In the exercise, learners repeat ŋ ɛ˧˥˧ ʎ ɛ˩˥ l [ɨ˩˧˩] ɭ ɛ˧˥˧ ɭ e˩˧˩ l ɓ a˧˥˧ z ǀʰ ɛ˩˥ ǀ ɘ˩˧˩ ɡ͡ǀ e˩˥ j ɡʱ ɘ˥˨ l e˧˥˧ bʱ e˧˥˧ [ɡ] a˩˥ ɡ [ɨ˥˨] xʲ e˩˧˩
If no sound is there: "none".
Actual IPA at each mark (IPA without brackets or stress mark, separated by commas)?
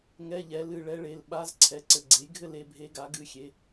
ɨ˩˧˩, ɡ, ɨ˩˧˩